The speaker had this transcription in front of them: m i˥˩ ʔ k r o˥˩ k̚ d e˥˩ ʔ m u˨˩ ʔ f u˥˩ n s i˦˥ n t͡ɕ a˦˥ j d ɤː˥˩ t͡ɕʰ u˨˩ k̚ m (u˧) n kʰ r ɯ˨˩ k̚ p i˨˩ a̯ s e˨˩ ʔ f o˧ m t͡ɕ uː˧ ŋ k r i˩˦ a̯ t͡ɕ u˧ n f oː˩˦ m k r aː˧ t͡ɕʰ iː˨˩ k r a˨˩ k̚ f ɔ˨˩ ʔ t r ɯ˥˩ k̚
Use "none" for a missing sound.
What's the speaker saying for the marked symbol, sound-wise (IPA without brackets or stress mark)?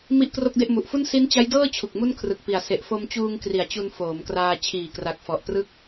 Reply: u˥˩